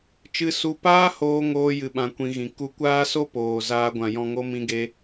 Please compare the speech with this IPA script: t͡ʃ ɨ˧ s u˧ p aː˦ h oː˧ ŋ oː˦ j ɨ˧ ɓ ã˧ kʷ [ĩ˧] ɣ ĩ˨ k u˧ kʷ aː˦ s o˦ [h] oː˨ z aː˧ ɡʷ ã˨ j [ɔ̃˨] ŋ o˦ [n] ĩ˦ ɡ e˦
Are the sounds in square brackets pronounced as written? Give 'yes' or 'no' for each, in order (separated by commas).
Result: yes, no, no, no